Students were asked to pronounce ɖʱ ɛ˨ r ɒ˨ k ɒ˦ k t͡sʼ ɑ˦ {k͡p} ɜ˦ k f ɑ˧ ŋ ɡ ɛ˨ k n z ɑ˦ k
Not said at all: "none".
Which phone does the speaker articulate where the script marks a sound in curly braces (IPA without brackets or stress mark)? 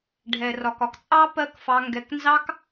p